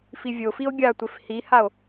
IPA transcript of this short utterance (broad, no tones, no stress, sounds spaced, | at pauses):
f i vʲ o f i o̯ ɡʲ a tʷ ɪ f h i h a o̯